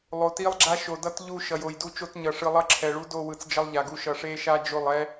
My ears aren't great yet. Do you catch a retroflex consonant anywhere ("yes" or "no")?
yes